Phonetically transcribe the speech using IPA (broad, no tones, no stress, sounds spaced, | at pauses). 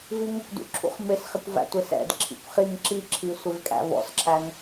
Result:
v i ŋ ʊ kʷ d ṵ ǁʰ ṵ χ m ɪ s χ ɪ kʷ v æ̰ tʷ ɪ s ɛ̰ d ǁʰ ḭ kʷ χ i ŋ ǁ i ǁʰ i sʷ ɪ v kʼ æ̰ v ɔ̰ s ǁʰ æ ŋ